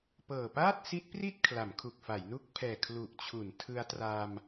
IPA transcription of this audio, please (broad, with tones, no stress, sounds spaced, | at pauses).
p ɤː˨˩ p aː˥˩ t̚ s i˦˥ t̚ p r i˥˩ t̚ kʰ l a˩˦ m kʰ u˨˩ k̚ f a˩˦ j n u˦˥ k̚ pʰ ɛː˨˩ kʰ l u˨˩ ʔ t͡ɕʰ u˩˦ n tʰ ɯ˧ a̯ t r a˧ m